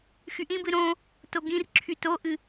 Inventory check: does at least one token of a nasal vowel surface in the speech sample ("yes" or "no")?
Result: yes